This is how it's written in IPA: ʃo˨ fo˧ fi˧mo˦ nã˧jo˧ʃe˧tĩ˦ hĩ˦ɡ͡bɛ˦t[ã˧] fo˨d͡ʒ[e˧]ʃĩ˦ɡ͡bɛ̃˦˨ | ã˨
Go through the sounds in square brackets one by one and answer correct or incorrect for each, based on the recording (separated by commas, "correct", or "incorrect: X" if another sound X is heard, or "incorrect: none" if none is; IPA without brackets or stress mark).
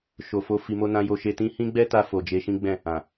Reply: incorrect: a˧, correct